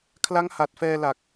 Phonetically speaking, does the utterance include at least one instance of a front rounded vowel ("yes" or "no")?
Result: no